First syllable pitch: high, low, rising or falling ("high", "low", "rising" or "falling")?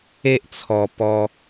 high